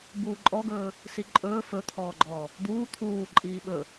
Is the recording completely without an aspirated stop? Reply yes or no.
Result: no